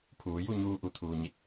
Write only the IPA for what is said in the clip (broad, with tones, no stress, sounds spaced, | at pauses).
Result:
pʰ uː˩˧ j u˥˨ ɲ uː˧ ʔ u˩ t̪ʰ uː˩ ɲ i˧˩ t̚